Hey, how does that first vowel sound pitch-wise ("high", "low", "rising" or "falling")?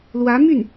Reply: rising